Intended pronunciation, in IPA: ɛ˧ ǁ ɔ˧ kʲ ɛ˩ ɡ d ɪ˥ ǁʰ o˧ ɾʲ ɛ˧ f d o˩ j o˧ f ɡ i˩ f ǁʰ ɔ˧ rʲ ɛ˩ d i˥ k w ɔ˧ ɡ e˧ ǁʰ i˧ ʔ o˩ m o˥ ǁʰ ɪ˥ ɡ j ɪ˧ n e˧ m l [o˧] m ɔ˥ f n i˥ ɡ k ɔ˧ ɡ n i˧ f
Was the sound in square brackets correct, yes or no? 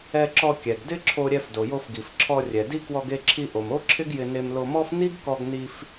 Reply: yes